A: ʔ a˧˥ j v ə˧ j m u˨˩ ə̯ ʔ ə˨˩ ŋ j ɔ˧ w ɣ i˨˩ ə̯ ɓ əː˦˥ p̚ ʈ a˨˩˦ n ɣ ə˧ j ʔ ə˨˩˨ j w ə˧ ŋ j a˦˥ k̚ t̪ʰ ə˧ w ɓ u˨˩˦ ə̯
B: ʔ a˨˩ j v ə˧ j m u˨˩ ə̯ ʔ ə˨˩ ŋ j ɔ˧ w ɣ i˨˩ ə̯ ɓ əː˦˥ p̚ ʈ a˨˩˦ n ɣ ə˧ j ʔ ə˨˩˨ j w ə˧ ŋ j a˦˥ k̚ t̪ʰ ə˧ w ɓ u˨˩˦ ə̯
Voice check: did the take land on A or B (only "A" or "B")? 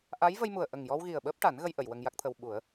A